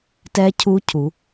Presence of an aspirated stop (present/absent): present